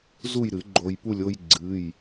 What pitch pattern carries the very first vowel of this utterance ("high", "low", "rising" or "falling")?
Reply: falling